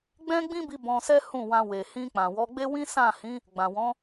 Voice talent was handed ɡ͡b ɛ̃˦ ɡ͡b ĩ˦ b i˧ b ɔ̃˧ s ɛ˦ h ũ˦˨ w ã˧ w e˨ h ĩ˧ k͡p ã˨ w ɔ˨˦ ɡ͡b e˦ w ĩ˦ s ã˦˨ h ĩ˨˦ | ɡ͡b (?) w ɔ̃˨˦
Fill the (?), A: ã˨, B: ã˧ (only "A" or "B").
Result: A